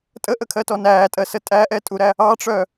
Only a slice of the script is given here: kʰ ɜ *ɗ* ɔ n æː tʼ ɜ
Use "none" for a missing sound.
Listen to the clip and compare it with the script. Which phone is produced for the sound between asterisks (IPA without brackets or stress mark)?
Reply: t